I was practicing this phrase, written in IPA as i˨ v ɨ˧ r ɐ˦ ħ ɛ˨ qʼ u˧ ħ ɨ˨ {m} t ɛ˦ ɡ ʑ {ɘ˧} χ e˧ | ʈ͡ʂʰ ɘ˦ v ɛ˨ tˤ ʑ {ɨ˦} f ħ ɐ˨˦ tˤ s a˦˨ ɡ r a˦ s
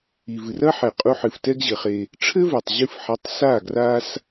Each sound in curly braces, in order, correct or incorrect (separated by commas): incorrect, incorrect, incorrect